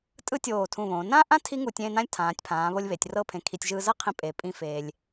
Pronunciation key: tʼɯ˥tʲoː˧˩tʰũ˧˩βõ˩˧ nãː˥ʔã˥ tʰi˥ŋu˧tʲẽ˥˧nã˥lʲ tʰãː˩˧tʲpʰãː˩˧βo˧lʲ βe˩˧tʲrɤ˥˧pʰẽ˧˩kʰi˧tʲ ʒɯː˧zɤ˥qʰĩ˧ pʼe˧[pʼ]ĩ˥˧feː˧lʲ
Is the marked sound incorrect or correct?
correct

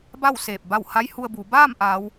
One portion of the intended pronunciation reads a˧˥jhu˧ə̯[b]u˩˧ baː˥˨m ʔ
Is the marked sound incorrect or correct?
correct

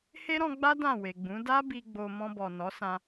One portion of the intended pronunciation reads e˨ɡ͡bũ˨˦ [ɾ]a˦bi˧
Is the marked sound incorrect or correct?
incorrect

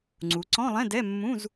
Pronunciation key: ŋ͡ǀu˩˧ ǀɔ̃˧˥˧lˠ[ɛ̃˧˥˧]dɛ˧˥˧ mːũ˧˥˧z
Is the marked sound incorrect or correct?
correct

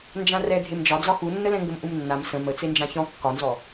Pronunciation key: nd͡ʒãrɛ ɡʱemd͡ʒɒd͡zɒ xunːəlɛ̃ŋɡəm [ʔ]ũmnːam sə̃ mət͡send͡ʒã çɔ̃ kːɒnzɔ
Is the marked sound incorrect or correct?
correct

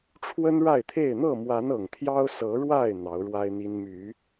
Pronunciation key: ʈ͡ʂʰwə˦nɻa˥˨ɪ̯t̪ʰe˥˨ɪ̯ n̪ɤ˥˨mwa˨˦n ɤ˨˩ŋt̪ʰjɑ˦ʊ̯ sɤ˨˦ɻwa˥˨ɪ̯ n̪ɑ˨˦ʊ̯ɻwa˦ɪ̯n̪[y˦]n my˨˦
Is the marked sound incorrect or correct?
incorrect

